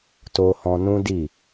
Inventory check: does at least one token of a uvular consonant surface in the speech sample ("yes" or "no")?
no